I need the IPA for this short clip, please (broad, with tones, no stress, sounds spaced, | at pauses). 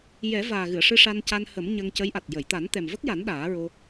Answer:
j ɛ˨˩˦ v aː˨˩ ɣ ɨ˨˩˨ ə̯ ʂ ɨ˧ ʂ a˧ n c a˧ n h ə˨˩˦ m ɲ ə˧ ŋ c ə˧˥ j ʔ a˨˩ t̚ j ə˨˩˨ j t̪ a˨˩˦ n t̪ ɛ˨˩ m v ə˦˥ k̚ j a˨˩˦ n ɗ aː˨˩˦ ɹ o˧